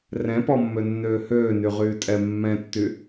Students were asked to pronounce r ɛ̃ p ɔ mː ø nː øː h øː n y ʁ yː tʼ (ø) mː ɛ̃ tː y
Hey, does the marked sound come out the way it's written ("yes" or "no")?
no